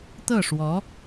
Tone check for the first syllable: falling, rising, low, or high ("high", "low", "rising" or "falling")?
falling